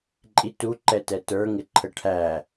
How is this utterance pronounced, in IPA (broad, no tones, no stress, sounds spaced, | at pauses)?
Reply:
ǃʼ i t u ǃ ɛ t ɛ t ə˞ ŋ ɪ ǃʰ ə ʈʰ æ